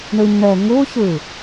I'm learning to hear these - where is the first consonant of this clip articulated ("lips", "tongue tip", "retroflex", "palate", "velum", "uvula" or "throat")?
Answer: retroflex